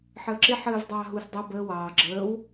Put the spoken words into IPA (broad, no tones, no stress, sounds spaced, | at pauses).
ħ əː ǁ ɪ ħ əː v dˤ ɑː ɦ u s dˤ ʌ b əː w ɑː ɡ͡ǁ əː w